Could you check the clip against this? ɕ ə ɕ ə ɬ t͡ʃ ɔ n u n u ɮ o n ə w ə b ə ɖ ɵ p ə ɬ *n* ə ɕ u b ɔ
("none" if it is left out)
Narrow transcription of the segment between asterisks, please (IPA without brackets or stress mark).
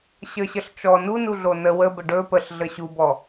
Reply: ɮ